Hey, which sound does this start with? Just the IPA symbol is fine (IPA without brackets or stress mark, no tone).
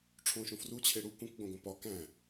ʈ͡ʂʰ